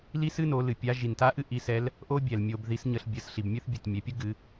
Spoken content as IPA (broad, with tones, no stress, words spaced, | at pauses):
li˥sɨ˥no˩˧ lɨ˩pʲa˧˥ ʒi˩nta˥ʔɨ˥ ʔi˧˥sɛ˧˥l | ʔo˥bʲɛ˩l mʲo˧b ði˧˥sɲə˧ɬ bʲə˩˧s ɬi˩bmʲɨ˥θbʲɨ˩t mʲɛ˩pʲə˥ ɡɨ˩˧